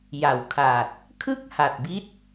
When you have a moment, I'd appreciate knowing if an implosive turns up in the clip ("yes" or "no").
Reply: no